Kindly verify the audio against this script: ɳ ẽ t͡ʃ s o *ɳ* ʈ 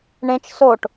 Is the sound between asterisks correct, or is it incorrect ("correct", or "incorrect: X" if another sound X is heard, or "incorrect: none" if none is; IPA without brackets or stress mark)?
incorrect: none